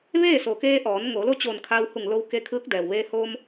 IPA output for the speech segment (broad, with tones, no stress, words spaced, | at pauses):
ʋeː˥˨so˩ keː˧ʔɔː˩˧n ŋo˩˧lo˥˨ t͡ɕoː˧˩nkʰa˧whu˧˩ŋlo˧w ke˧kʰɯː˧˥k̚dɛː˩wʋeː˧ hoː˧m